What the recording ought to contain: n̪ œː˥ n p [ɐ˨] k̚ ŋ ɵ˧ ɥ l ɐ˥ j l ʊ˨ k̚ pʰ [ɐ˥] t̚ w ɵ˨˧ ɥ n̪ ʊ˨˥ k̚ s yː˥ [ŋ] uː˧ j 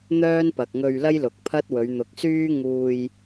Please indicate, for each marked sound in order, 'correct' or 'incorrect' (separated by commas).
correct, correct, correct